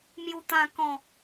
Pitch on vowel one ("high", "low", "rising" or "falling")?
low